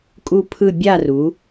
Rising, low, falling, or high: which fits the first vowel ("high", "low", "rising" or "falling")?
falling